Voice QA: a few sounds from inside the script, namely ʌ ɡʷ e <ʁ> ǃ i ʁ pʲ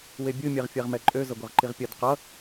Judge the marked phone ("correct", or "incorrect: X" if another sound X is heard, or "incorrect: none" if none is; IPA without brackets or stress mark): correct